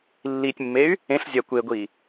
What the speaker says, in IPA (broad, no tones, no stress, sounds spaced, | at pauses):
lː i tʲ mː e y̯ | ẽ ɬ zʲ a kʷ e ɡʷ i